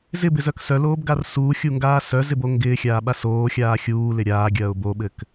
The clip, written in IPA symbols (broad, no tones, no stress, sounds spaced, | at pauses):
z ɪ b ɪ z œ k s œ l oː b ɡ a r s uː xʲ u ŋ ɡ aː s œ z ɪ b o ŋ ɡ ɪː xʲ aː ɓ a s oː xʲ aː xʲ uː l ɪ ɾʲ aː ɡʲ ɐː ʊ̯ b o ɓ ɘ k